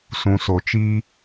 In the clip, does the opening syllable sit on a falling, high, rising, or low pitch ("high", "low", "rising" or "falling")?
low